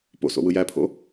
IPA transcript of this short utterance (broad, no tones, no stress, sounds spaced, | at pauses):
p o̰ s o̰ w ɯ j æ pʰ o̰